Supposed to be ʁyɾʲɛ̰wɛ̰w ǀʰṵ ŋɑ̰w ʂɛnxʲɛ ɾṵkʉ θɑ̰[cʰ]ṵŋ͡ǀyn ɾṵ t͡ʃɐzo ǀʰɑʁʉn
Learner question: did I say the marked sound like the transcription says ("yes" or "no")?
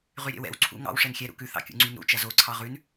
no